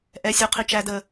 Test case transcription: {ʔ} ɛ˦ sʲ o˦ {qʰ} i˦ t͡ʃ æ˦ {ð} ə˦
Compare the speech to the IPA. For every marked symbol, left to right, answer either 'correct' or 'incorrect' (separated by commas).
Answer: correct, correct, incorrect